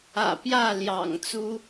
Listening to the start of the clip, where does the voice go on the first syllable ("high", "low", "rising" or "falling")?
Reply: low